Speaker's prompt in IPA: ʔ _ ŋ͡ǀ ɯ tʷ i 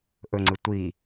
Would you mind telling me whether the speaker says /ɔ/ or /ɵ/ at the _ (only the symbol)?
ɵ